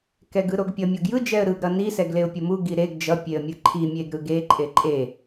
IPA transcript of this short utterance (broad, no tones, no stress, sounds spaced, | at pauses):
k ɛ ɡ ɯ ɾ o ɡ pʲ ʌ mʲ o ɡ j ɯ d͡ʒ ɛ ə̯ ɾ ɯ ɡ ɾ ʌ n i s ɛ ɡ l e ʊ̯ pʲ ʌ m u ɡ i ɾ e ɡ d͡ʒ ʌ pʲ e ə̯ mʲ ɯ ǃʰ i mʲ e ɡ ɾ ɯ ɡ e ǃʼ e ǃʼ e